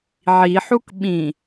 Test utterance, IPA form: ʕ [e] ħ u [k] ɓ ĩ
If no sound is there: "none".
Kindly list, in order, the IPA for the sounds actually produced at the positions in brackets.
i, k

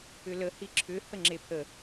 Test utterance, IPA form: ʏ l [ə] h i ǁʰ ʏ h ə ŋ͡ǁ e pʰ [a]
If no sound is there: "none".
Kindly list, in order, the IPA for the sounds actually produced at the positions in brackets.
ə, ə

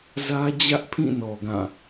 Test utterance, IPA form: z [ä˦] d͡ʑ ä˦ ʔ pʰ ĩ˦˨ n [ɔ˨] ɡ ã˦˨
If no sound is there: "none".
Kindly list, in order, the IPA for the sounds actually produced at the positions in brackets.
ä˦, ɔ˨

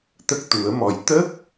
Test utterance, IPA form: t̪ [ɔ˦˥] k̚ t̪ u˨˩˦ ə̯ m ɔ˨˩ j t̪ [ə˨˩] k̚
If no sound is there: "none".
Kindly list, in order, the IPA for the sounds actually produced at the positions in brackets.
ə˦˥, ə˦˥

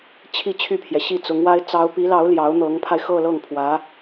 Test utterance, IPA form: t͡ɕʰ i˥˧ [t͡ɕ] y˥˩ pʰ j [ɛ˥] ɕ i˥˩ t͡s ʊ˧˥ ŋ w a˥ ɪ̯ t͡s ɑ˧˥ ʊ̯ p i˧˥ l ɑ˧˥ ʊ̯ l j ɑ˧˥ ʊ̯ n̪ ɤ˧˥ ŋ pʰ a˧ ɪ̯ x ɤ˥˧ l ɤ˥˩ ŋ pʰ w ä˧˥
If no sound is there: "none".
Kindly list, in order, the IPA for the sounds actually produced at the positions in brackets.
t͡ɕʰ, ɛ˩

